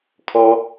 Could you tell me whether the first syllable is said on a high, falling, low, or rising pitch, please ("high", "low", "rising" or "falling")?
high